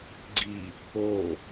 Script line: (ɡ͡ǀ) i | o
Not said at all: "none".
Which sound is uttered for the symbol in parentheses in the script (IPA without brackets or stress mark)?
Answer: ɡ͡ǀ